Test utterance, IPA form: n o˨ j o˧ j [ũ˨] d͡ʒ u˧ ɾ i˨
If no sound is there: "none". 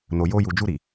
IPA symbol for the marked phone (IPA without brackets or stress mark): u˨